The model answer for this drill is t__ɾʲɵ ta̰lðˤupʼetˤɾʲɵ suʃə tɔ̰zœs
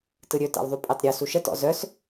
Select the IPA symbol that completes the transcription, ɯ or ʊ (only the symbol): ɯ